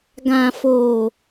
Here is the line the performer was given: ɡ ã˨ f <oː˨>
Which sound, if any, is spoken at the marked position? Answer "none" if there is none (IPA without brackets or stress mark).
oː˨